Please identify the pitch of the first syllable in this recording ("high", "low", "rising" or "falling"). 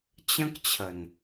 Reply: high